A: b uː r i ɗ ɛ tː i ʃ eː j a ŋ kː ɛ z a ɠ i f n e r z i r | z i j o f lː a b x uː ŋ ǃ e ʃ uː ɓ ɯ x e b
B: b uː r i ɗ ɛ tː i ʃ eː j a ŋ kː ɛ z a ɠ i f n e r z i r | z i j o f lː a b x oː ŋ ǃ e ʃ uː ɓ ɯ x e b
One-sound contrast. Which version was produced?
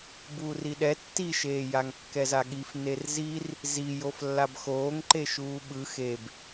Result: B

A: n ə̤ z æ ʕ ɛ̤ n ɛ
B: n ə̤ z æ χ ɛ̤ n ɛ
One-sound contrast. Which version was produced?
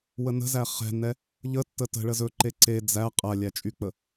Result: B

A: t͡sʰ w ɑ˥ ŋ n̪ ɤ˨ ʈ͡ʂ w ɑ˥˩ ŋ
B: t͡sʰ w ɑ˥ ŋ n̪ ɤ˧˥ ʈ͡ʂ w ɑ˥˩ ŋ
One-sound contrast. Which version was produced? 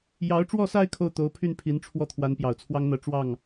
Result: B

